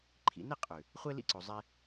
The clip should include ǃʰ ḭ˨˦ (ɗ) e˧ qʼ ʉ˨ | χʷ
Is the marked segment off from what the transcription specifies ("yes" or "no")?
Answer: yes